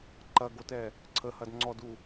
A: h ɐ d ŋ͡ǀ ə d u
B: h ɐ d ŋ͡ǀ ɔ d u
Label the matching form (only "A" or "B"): B